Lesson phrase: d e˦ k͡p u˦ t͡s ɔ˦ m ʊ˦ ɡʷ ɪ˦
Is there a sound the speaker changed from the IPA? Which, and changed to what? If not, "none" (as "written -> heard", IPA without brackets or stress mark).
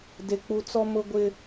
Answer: none